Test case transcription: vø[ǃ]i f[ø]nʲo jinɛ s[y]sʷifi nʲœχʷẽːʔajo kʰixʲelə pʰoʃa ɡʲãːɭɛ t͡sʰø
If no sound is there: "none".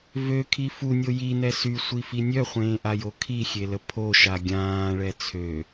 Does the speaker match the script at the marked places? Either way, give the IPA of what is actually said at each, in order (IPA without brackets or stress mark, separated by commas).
kʰ, u, y